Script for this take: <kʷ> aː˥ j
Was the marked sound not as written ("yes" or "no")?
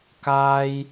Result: yes